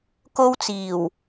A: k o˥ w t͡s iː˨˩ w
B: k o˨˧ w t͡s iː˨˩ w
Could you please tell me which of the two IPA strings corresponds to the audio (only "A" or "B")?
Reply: A